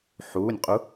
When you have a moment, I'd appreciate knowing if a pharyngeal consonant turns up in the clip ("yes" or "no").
yes